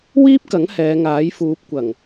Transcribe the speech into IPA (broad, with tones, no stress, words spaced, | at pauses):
wiː˥p̚kɐ˨˥ŋ hɛː˨˧ŋaː˨˥jfuː˨˥p̚ kʷɐ˨˩ŋ